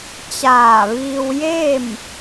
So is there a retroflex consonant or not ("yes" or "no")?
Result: no